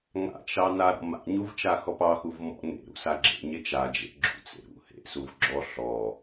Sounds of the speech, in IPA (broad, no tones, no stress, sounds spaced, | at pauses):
ŋ a̰ t͡ʃ ɑ n a ɾ ɔ̰ m a̰ ɲ u v t͡ʃ a x ɔ p ɑ x u v m ɔ̰ n ḛ ɾ ṵ s a ɡ͡ǁ ḛ ɲ e t͡ʃ a d͡ʒ ḛ ɡ͡ǁ ṵ t͡s ḛ ɾ ṵ h ḛ s u v ɡ͡ǁ ɔ ɬ ɔ